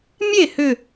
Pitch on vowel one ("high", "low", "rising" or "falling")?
falling